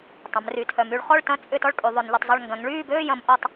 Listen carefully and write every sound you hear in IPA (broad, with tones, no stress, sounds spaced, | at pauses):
tˤ ɐ̃˩˧ m r y˩˧ tʰ œ˩˧ m y˩˧ ɭ χ ɔ˥˨ ɭ t ɐ̃˥˨ t͡sʼ ʏ˥˨ t ɔ˥˨ ɭ kʼ y˩˧ ðˤ ø˩˧ n ʎ ʏ˩˧ tˤ zˤ ʏ˥˨ ɭ ŋ ɡ ɐ̃˩˧ ŋ ɭ yː˥˨ b øː˥˨ j ɐ̃˩˧ m ʔ ɔ˥˨ tˤ